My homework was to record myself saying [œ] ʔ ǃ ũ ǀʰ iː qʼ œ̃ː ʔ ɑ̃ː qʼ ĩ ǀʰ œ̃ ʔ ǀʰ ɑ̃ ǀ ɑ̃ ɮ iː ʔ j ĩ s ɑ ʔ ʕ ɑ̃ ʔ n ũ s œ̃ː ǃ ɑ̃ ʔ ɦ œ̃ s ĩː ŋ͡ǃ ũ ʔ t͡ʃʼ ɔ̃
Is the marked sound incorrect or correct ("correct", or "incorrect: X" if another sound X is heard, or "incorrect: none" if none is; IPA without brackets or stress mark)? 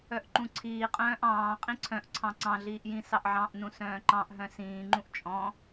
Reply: correct